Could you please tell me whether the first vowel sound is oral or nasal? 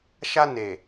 oral